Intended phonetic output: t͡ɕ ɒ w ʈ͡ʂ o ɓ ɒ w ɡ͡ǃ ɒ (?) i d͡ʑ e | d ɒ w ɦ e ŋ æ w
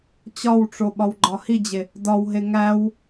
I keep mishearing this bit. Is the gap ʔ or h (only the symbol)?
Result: h